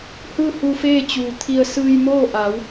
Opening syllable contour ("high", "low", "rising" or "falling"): falling